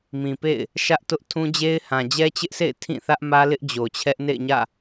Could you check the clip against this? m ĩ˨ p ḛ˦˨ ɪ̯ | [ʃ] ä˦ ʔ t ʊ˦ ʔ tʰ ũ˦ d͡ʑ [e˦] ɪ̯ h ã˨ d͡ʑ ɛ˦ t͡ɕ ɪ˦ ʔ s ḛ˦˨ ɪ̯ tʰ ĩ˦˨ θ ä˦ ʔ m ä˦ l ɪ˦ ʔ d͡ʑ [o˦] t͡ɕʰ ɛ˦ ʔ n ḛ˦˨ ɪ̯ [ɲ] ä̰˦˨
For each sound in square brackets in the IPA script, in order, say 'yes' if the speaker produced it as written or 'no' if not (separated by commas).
yes, yes, no, yes